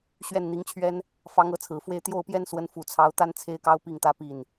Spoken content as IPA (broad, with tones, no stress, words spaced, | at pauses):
ɕɥɛ˥˩n n̪i˧˥ŋt͡ɕʰɥɛ˥n | fɑ˧˥ŋɤ˧˥t͡sʰɹ̩˨˩fwe˥˧ɪ̯ t̪jo˥˩ʊ̯pjɛ˥nswə˧˥n fu˨˩t͡sʰɑ˧˥ʊ̯t̪a˥n t͡sʰe˥ɪ̯kɑ˥ʊ̯ pi˥˩ŋt̪ä˥pi˥˩n